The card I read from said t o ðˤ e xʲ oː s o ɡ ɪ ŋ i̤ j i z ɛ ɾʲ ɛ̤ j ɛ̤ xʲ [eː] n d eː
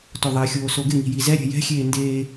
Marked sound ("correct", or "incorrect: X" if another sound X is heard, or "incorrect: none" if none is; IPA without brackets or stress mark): correct